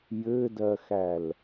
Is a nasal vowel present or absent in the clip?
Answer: absent